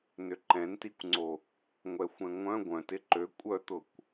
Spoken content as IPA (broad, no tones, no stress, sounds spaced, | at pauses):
n ʏ ǃ ɛ̃ n t i kʷ ŋ͡ǀ o | ŋʷ ɛ xʷ ɛ̃ ŋʷ œ̃ ɡʷ œ̃ t ɪ ǃ ø kʷʼ œ t̪ ʊ kʷ